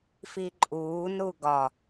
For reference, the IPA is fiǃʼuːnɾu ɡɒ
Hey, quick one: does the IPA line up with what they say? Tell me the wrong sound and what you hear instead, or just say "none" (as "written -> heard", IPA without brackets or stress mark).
none